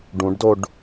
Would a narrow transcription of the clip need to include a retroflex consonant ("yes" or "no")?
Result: yes